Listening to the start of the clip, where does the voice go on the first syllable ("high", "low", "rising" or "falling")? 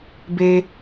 high